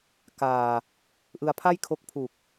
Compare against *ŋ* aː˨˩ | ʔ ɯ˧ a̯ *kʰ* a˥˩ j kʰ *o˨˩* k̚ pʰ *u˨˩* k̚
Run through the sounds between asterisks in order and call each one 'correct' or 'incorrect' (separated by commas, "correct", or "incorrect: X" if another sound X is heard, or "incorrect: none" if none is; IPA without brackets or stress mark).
incorrect: k, incorrect: pʰ, incorrect: o˦˥, correct